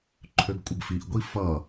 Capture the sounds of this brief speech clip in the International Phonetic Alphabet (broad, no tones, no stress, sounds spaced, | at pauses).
ǃʰ ø ɡ kʷʼ ə ɡ f i ʔ ɡʷ i f ʌ